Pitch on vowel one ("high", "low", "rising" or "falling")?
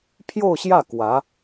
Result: falling